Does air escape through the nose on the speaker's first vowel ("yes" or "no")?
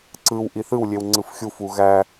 no